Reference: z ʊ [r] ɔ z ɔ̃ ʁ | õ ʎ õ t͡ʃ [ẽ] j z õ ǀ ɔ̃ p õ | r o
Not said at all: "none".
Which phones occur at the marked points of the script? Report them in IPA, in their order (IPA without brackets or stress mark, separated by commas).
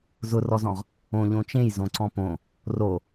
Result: r, ẽ